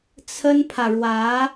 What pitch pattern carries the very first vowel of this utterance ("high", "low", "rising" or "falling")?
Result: high